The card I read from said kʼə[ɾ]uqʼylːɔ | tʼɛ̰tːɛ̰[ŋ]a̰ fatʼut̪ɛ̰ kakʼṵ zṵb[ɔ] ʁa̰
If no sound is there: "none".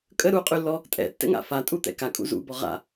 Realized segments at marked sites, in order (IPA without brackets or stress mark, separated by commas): ɾ, ŋ, ɔ